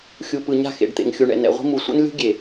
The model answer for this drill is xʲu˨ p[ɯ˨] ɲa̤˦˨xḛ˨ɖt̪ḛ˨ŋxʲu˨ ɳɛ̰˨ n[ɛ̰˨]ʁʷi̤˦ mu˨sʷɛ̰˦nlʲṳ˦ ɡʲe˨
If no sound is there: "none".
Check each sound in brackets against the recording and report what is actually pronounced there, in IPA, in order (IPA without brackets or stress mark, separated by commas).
ɯ˨, ɛ̰˨